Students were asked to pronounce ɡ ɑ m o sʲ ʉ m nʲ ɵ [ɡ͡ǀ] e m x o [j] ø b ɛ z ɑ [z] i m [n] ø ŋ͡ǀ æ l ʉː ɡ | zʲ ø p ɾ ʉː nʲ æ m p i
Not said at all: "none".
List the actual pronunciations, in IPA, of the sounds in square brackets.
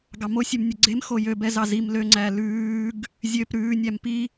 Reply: ɡ͡ǀ, j, z, l

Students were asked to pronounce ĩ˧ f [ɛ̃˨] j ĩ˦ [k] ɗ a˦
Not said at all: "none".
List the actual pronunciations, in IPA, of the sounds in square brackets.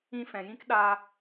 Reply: ɛ̃˨, k

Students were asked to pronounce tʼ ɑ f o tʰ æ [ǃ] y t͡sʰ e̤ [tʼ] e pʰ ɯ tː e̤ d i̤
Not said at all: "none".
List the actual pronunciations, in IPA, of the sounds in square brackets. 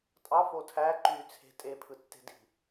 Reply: ǃ, tʼ

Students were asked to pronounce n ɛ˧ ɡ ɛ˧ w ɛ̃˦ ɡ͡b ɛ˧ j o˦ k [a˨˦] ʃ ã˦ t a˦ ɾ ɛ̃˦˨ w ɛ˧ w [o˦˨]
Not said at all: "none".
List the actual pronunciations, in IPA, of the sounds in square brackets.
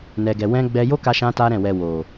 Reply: a˦, o˨

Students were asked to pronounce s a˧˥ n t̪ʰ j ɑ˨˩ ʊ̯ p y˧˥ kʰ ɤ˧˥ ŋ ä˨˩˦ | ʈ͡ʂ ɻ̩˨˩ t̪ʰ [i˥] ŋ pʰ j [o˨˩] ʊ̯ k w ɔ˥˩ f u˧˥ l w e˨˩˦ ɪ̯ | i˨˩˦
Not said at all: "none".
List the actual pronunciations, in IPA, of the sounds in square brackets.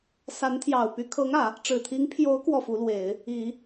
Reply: i˧˥, o˧˥

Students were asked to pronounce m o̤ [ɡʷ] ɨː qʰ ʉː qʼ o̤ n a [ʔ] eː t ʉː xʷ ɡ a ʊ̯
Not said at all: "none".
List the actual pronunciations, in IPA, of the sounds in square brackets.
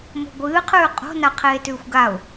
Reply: ɡʷ, qʰ

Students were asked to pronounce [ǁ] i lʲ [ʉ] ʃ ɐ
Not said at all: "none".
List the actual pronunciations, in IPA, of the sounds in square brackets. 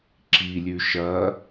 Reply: ǁ, ʉ

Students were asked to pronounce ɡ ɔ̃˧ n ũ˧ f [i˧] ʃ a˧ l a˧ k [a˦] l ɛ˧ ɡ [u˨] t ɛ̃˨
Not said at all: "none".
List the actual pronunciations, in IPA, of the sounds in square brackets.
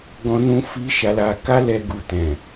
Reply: i˧, a˦, u˨

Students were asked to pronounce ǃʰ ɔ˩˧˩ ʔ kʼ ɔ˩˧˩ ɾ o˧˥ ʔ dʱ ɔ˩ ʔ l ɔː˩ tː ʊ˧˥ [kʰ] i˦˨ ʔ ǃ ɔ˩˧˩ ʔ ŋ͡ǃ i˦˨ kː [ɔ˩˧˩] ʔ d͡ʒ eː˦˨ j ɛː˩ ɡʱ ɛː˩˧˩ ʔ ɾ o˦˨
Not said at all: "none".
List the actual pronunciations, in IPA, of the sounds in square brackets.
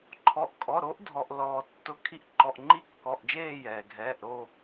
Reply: kʰ, ɔ˩˧˩

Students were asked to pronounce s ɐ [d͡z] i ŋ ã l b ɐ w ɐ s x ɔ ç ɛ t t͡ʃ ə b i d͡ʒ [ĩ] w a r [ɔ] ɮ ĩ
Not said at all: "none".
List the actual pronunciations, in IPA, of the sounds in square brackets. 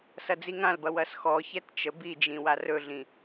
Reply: d͡z, ĩ, ɵ

